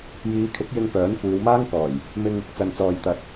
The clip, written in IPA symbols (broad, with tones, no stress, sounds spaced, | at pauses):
j iː˨˧ kʰ ɪ˨˥ k̚ j ɪ˧ ŋ p œː˨˥ n kʷ iː˨˧ w m aː˥ ŋ k ɔː˨˩ j | m ɪ˧ ŋ | t͡s ɐ˨ n t͡s ɔː˨ j t̪ ɐ˨˥ t̚